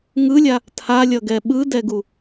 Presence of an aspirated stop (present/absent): present